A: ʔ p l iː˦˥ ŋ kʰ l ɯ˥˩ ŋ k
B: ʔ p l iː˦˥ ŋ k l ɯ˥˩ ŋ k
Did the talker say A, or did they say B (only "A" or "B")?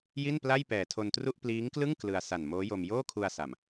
B